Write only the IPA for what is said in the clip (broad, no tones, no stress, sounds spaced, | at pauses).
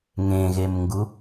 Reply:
ŋ ẽ ɣ e m ŋ ɡ u